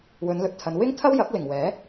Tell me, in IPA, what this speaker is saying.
w ɵ˨˧ n l ɵ˨ t̚ t̪ʰ ɐ˨˧ n w ɪ˥ ŋ t̪ʰ ɐ˥ w j ɐ˨˥ k̚ l ɪ˨˩ ŋ w ɛː˨˥

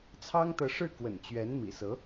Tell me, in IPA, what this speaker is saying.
t͡sʰ ɑ˥ ŋ t̪ ɤ˧˥ ʂ ɻ̩˥˩ k w ə̰˨˩ n t͡ɕ ɥ ɛ˧˥ n m ḭ˨˩ s ɤ˧˥

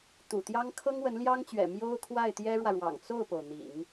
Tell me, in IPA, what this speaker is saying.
t̪ ṵ˨˩ t̪ j ɑ˥ ŋ kʰ ɤ˥ ŋ w ə˧˥ n l j ɑ˥ ŋ t͡ɕ ɥ ɛ̰˨˩ m j o˥ ʊ̯ kʰ w a˥˩ ɪ̯ t̪ j ɛ˥ ɻ w ä˨ ɻ w ɑ̰˨˩ ŋ t͡s o˥˩ ʊ̯ p o˩ ʊ̯ n̪ ḭ˨˩˦ ŋ

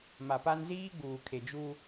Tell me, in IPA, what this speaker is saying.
m a˨ p a˦ n z iː˦ ɡ͡b uː˨ kʰ e˨ d͡ʒ u˦

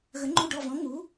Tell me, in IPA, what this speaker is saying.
ɣ ə˨˥ ŋ͡ǃ u˦˨ ɖ ɔ˦˨ v ɔ̃˨˥ ŋ u˨˥

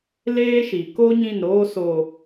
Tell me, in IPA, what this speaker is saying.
l eː˦ ʃ i˨ k o˦ ɲ ĩ˦˨ n ɾ oː˦ s oː˨

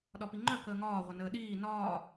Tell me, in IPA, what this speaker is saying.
ɗ ɒ p i ŋ͡ǃ œ k əː ŋ ɒː ʁʷ ə n əː ɗ iː n ɒː

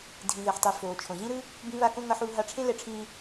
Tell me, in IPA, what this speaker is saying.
dʱ ĩ˩ ð e˩ ħ tˤ e˩ f oː˩ t͡ʃʰ õ˩ ʑ ĩ˥ ɾ ɯ˥ | b ĩ˧ β a˧ k õ˥ ŋ ʌ˧ ħ uː˧ ɦ a˧ ʈ͡ʂʰ ẽ˥ l ɛ˧ ʈ͡ʂʰ ĩː˧

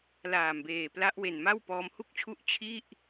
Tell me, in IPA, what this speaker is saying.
l aː˨˩ m b eː˨˩ p l a˦˥ ʔ w e˨˩ n m a˥˩ w p ɔː˦˥ m h u˥˩ k̚ t͡ɕʰ u˥˩ ʔ t͡ɕʰ i˥˩ ʔ

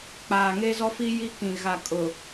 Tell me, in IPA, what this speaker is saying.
k͡p aː˨ ŋ e˦ z ɔ˦ f i˦ j i˦ k ĩ˨ ɣ a˨ kʼ ʊ˨

